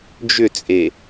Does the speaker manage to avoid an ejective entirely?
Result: no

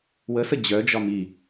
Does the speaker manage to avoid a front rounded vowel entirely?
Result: no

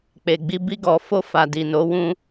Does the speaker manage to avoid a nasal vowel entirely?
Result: no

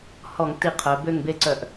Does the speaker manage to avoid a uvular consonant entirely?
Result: no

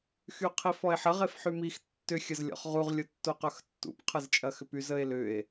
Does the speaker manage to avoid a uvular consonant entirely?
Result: no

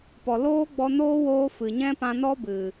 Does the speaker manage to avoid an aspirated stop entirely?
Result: yes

